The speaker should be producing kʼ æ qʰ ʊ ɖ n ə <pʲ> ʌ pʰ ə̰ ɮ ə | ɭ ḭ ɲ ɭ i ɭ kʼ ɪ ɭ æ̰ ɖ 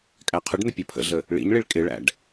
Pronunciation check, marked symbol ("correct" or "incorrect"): correct